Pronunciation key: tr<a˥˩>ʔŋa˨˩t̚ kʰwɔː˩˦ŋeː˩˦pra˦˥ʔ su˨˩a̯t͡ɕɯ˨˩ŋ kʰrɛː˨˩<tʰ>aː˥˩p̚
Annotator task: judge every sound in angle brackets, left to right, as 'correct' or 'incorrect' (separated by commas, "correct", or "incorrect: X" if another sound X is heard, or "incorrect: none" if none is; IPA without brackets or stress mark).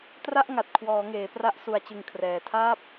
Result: correct, correct